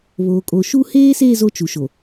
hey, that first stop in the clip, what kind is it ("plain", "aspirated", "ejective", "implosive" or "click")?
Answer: ejective